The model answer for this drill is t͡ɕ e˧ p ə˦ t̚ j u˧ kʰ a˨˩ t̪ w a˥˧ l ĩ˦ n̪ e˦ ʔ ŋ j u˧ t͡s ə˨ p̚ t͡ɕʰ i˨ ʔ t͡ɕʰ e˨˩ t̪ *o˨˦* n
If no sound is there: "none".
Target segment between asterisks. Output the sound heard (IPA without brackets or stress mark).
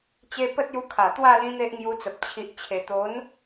o˨˦